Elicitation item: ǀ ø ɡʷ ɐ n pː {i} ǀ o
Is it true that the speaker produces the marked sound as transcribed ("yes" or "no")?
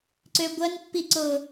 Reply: yes